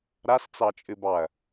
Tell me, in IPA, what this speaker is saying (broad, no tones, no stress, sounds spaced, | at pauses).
ɾ a s t͡s ɑ t͡ʃʼ ɨ b ɑ ɐ̯